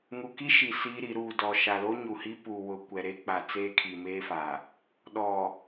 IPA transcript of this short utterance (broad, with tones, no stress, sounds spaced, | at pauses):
ŋ u˨ k i˦ ʃ i˨ s iː˦ ɾ i˨˦ ɾ uː˨ d ɔ˨ ʃ a˨ l o˦ ɲ u˨ h i˦ p u˨ w ʊ˨ kʷ ɛ˨ ɾ e˦ k͡p a˨ t͡s eː˦ kʰ i˨ m eː˦ f aː˨ | ɗ ɔ˨